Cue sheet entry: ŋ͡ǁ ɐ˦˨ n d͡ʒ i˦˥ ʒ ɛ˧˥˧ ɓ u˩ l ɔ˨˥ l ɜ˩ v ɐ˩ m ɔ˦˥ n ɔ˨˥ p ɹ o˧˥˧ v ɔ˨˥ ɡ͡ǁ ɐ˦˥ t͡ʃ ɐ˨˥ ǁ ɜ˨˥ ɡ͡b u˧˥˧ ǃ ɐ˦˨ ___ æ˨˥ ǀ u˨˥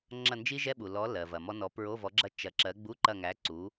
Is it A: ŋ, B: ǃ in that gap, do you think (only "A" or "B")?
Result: A